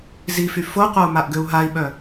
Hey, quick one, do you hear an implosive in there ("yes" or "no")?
yes